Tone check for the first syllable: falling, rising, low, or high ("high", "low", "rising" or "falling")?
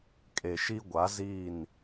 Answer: low